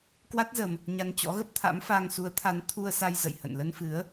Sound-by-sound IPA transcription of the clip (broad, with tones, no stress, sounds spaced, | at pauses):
k w a˦˥ t̚ z ə˧ m | ɲ a˧ n t͡ɕ ɔ̰˧˥ ɣ ə˦˥ p̚ t̪ʰ a̰˧˥ m f a˧ ŋ s u˨˦ ə̯ t̪ʰ a˨˦ n t̪ʰ u˧ ə̯ s a˧ j z ə̰˧˨ j h ə̰˧˨ n l ə˧ n f ɨ˨˦ ə̯